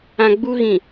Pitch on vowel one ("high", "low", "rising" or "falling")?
low